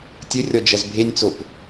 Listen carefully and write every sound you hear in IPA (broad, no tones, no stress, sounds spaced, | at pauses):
tʲ ɘ rʲ ɔ d͡ʒ ɐ z bʱ e nʲ t͡s o p